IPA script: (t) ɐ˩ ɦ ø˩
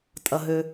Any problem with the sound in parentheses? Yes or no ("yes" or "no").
yes